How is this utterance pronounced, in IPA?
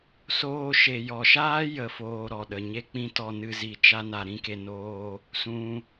s oː˧ ʃ e˨ j ɔ˨ ʃ aː˦ j ə˦˨ f oː˧ ɾ ɔ˨ ɗ ə˨ ɲ e˦ k͡p ĩ˦ t ɔ˧ n ɨ˧ z i˧ t͡ʃ a˦ n a˧ ɾ ĩ˦ k e˧ n oː˦ | s ũ˧

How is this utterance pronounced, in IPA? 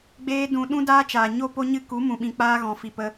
ɡ͡b eː˧ d ũ˨ ɗ ũ˦ d aː˦ t͡ʃ aː˨ ɲ o˦ p o˦ ɲ ɨ˦ k u˨˦ m ũ˨ ɓ ĩ˨ k͡p aː˦ ɣ ɔ̃˨ f i˨ p ə˧

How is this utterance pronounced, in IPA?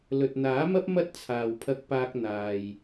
l ɵ˨ t̚ n̪ aː˨˥ m ɐ˥ p̚ m ɐ˥ t̚ t͡sʰ aː˨ w pʰ ɐ˧ k̚ p aː˧ k̚ n̪ aː˨ j

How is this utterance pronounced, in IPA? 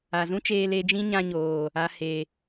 a˨ z ũ˦ t͡ʃ eː˧ l eː˧ d͡ʒ ĩ˦ ɲ ã˧ ɲ oː˨ | a˧ h e˨

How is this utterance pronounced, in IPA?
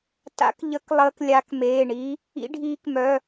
t a̰˨˦ k ʎ ə˨˦ k lˠ əː˨˦ k lʲ a˨˦ k m eː˩˧˩ ɳ i˨˦ | ḭ˨˦ ɖʱ iː˨˦ k m œ˩˧˩

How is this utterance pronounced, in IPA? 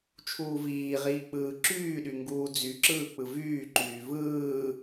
t͡ʃʰ uː v iː ʁ iː k͡p ɯː ǁ yː ɗ y ŋ ɡ uː d͡z y ǁ ɯː k͡p ɯ v yː ǃ yː v ɯː

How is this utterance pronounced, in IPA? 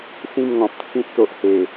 s ĩ˥˧ m ŋ ɔ̃˨ p̚ t͡sʰ ĩ˦ t̚ t̪ o˨ ʔ h e˨˩

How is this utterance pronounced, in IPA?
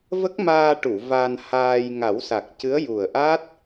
v ə˦˥ k̚ m aː˧ ʈ u˨˩˨ v a˧ n h aː˧ j ŋ a˨˩˦ w s a˨˩ k̚ c ɨ˧˥ ə̯ j u˨˩ ə̯ ʔ a˦˥ t̚

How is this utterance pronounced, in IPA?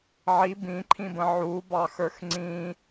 ʕ i b ĩ ǃʰ ĩ b ə̃ ʕ u b ɑ x ə˞ x ŋ͡ǀ ĩ

